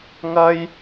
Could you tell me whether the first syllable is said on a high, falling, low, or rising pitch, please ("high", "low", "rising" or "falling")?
high